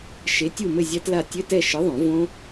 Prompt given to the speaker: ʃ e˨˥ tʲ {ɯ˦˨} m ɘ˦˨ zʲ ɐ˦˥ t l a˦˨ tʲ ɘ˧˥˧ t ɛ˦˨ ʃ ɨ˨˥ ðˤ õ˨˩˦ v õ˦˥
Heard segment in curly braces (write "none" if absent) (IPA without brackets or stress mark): u˦˨